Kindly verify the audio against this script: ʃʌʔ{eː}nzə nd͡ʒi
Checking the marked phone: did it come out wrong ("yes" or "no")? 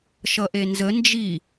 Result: yes